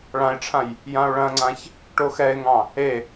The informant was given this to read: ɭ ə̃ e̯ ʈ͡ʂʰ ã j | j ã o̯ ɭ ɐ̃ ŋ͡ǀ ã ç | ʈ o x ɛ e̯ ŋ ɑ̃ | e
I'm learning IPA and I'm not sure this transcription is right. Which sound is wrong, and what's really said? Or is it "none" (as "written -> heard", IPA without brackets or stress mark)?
ə̃ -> ã